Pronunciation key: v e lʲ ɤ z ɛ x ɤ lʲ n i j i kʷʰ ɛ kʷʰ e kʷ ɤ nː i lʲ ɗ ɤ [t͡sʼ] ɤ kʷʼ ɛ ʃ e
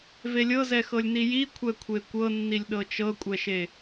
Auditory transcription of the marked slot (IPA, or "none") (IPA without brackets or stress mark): t͡ʃ